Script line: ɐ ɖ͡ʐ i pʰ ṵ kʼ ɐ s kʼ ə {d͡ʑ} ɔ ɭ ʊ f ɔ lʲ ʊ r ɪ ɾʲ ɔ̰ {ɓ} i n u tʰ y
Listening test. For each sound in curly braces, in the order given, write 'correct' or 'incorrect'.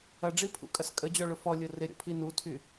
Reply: correct, incorrect

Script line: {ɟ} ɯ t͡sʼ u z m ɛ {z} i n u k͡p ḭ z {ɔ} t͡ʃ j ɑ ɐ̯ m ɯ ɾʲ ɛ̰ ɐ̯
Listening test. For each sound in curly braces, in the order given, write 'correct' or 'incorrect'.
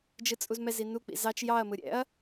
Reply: incorrect, correct, incorrect

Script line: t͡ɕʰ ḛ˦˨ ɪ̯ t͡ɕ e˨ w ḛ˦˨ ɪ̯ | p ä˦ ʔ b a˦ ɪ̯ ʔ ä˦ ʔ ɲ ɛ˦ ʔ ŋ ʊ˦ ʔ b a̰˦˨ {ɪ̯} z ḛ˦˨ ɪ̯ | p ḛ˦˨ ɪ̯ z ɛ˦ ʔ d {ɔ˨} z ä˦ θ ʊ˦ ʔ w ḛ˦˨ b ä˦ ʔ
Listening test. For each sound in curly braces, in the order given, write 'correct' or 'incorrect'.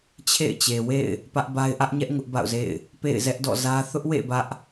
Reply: incorrect, incorrect

